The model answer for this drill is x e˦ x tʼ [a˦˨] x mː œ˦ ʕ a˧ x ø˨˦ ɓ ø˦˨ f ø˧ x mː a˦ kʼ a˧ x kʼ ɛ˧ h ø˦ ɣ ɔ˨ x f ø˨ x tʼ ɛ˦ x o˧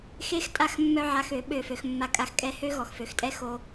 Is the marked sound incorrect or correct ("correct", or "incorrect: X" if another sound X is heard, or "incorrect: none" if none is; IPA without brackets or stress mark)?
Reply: correct